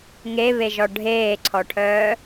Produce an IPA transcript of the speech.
ŋ e β e ʒ ɔ ɖʱ eː ǀʰ ɔ ʈʰ œː

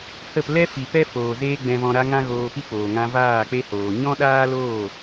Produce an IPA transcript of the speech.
h ə˦˨ p l ɛ˦ f i˨ p ɛ˦ f oː˨ z eː˦ ɡ͡b ɛ̃˧ v ɔ̃˧ ɾ a˦ ŋ ã˦ ɣ oː˧ p i˦ k͡p oː˨ ŋ ã˧ v aː˦˨ k͡p e˦ h oː˨ ɲ ɔ̃˦ ɗ aː˦ l oː˦˨

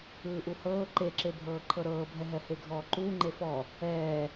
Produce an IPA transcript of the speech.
ɯː ʔ u h ɤː ǃ e ǁ e bʱ ɤː ǃʰ ɤ ɾ ɤː bʱ ɛ ɦ ɛ h e ɡʱ ɔː ǃ uː ŋ͡ǃ e f ɔ | ɛː

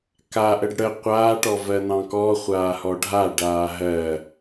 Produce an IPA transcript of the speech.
k a ʔ ə ɖ ɽ ə qʷ aː ʈ ɔ v ɜ n ɑ̃ k ɔ χʷ aː h ɔ ɖʱ a ɖ aː ɦ ɜ

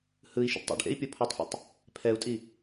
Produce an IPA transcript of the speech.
h ɯ i̯ ʃ ṵ ɖ tˤ ḭ ɖ ʔ ḛ i̯ pʲ o pʰ u tˤ f ḭ tˤ | pʰ ɛ u̯ tʼ i

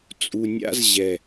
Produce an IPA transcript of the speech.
t͡sʼ u˨ nʲ a̰˦ z ʑ ɛ˨

